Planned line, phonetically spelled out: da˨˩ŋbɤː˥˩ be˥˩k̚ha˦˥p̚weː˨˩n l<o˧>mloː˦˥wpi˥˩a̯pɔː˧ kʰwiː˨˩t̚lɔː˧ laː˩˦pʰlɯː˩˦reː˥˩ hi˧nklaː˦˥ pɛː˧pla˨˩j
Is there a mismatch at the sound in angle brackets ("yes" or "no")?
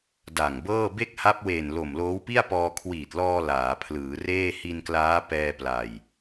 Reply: yes